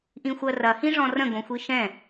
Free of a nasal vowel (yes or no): no